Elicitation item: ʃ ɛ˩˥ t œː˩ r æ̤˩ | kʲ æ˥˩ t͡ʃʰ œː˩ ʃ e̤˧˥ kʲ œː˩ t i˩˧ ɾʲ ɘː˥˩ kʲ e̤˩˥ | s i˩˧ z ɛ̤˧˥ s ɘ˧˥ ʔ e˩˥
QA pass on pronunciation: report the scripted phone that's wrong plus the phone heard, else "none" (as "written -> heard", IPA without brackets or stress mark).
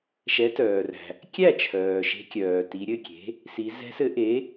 ɘː˥˩ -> ɘ˥˩